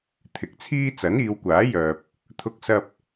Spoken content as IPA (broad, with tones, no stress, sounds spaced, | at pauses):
t̪ʰ ɪ˨ k̚ t͡sʰ iː˥ t͡s ɐ˨˥ n iː˨˧ w kʷ aː˨˥ j œː˨ p̚ | t̪ʰ ʊ˧ k̚ s ɐ˧ p̚